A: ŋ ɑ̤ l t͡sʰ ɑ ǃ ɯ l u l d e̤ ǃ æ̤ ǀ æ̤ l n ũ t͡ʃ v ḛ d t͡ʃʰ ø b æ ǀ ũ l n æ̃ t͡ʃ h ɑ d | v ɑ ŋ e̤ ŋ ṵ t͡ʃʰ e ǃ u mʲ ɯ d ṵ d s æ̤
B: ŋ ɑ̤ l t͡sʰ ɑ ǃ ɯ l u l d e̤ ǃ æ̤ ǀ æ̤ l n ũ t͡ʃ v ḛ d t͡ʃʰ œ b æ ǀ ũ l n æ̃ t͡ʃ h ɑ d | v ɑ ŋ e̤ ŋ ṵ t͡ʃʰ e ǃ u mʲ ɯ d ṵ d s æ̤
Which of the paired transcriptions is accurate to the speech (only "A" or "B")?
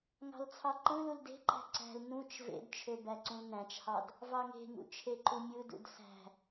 A